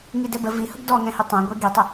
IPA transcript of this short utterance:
ŋ i d ɛ b ə v i h ʊ ɡ d ɔ ŋ ɛ̃ h ʏ tˤ õ ɡʷ ɛ ɡ i tˤ ə

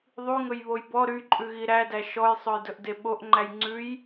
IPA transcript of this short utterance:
ðˤ y ŋ ɵ j β o j b ɔ ɾ y ǃʼ ʉ ɣ i ɾ æ d æ ʃ ɔ j sˤ ɵ j d ɵ ʔ d e ɓ o ʔ ŋ͡ǃ æ j ŋ͡ǀ ʉ j

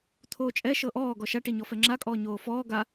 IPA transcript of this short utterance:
t̪ʰ oː t͡ʃʼ ɛ ʃ ɤ ʔ ɔː ɡ ɔ ʃ a ʈ i ɲ ɔ f ɛ ŋ͡ǁ a kʼ ɔː ɲ oː f ɔː ɡ a

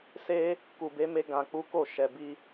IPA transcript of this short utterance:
s e˦ | k u˨ b e˨˦ m e˧ ɡ ã˨ k͡p u˨˦ k o˦˨ ʃ ɛ˨ b i˧

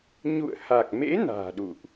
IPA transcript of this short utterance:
ɲ ṵ˧˨ ə̯ h a˨˩ k̚ m ḛ˧˥ n a̤ː˨˩ ɗ ṵ˧˨ ʔ

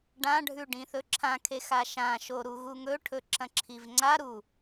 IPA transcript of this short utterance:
ɖ ã ɖʱ ʉ ɖ ĩ θ ɵ ǁʰ ã kʰ e x a ʃ ã ʃ o ɾ u ɣ u ŋ ɵ ʈʰ ɵ ǁ ɐ̃ ǁʰ i v ŋ͡ǀ a ɾ u

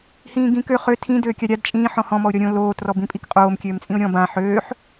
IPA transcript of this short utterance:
h ĩː ɡ ĩː k ø χ ø tʰ ĩ d øː kʲ a ɾʲ a d t͡ʃʼ ĩː ħ ɔ̃ h ɔ̃ m ɔ ʊ̯ ɾʲ ɔ ɾʲ õ l oː t r ɔ b ĩ pʼ i k qʼ oː m kʲ øː m t͡sʼ ĩ ʊ̯ ɾʲ ɔ̃ b ã ħ øː ħ

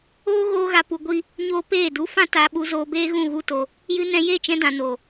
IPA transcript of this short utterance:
oː˦ ɣ oː˧ ɣ a˧ p u˧ ɡʷ i˦ | ɲ oː˦ p eː˦˨ d u˧ f ã˦ t a˧ ɓ u˧ z oː˧ b eː˦ ɣ ũ˦˨ ɣ u˦ t o˧ | j ɨ˧ n ɛ̃˧ j e˦˨ t͡ʃ ɛ̃˧ d ã˨ n o˨

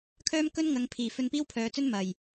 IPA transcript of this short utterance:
kʰ œː˥ m k ɵ˥ n ŋ ɐ˨˧ ŋ pʰ iː˨˩ f ɵ˧ n p iː˥ w pʰ œː˨ t͡s ɵ˥ n m ɐ˨˩ j

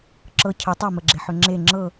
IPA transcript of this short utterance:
ǁ ɤ cʰ ə tˤ a m ə ɡ͡ǁ e ħ ø ŋ͡ǁ e ŋ͡ǁ ɤ

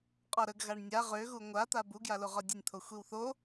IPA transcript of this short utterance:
qʼ ɒ ɾ ə ɡ ɣ a ɳ nʲ a ʁ ø ɣ u ŋʷ a t̪ a b u ɡ j a l o ʁ ɒ dʲ ə nʲ t̪ʰ o xʷ i w θ o

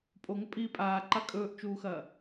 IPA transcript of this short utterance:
pʼ o ŋ ɵ pʼ iː pʼ aː ǃ a kʼ ɵː ʔ t͡ʃ uː x ɐː

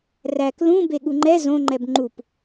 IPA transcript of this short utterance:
r æ k l ũ b e ɠ u ŋ͡ǃ ɛ z õ ŋ͡ǃ ɛ b ŋ͡ǃ u p

